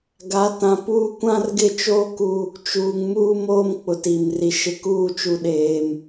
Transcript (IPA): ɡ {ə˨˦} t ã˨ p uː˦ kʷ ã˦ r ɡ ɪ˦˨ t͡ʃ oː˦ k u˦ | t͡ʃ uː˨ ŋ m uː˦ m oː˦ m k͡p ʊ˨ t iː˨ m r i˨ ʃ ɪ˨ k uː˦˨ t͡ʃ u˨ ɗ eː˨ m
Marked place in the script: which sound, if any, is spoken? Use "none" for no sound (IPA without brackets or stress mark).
a˨˦